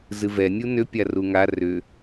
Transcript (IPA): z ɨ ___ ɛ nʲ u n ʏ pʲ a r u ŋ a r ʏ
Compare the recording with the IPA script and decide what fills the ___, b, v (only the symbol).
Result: v